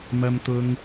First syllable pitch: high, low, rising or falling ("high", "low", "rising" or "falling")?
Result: high